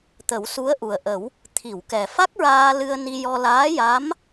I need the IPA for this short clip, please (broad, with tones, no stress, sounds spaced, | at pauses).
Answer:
t̪ ə˨˩˦ w s u˧˥ ə̯ ʔ u˨˩ ə̯ ʔ ə˨˩˦ w | t̪ʰ i˨˩˨ w k ɛ˨˩ f a˦˥ k̚ ɹ aː˧ l ɨ˧ ə̯ n i˧ j ɔ˧ l aː˧˥ j a˧˥ m